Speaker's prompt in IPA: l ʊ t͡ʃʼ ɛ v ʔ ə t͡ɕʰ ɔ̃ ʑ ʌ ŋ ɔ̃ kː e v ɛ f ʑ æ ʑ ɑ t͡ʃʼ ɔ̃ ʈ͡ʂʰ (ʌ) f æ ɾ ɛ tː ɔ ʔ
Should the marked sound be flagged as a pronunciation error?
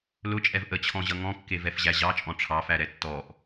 yes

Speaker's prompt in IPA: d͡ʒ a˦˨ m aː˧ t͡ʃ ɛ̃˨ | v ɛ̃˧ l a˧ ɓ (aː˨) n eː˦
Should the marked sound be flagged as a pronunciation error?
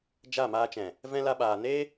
no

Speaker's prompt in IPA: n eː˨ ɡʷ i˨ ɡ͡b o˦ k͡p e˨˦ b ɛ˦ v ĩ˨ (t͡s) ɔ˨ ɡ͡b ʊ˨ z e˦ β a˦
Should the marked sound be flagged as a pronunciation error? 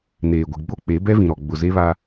yes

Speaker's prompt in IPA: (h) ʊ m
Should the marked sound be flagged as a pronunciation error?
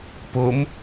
yes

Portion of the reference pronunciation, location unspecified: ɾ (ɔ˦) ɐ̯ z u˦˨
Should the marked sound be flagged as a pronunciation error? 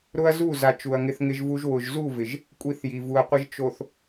yes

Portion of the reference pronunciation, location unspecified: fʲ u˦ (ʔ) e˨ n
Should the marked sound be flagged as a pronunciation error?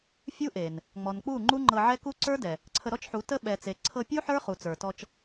no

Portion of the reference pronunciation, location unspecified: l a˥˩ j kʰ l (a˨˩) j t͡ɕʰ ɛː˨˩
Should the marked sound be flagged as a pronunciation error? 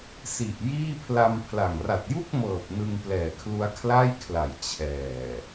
no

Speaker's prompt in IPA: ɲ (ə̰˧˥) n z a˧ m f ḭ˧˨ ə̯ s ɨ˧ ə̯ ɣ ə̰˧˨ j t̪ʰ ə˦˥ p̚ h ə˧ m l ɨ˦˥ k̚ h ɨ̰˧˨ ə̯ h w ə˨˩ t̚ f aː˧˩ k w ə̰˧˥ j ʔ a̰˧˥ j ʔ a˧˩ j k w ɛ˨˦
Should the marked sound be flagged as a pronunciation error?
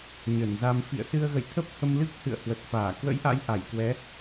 yes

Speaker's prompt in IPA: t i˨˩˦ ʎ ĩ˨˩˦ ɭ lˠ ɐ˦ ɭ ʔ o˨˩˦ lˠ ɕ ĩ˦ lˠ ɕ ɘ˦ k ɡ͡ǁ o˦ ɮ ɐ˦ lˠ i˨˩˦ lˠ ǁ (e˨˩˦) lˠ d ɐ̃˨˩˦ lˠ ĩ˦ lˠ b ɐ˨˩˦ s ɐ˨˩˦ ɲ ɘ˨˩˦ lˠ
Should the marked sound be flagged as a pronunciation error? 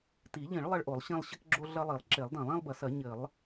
no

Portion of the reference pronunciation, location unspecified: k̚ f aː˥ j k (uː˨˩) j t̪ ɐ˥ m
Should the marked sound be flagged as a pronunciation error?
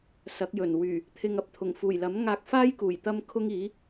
no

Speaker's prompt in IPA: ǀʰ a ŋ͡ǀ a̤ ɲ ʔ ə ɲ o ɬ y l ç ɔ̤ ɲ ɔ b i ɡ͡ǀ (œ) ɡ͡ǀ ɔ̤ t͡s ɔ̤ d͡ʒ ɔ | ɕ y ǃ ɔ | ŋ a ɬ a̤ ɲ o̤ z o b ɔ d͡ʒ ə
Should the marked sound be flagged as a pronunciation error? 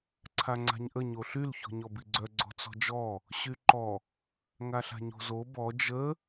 no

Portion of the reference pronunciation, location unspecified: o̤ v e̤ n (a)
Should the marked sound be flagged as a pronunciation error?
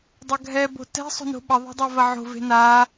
no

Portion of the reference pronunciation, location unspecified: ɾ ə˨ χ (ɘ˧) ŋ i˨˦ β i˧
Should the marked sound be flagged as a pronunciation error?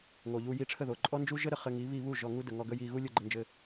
no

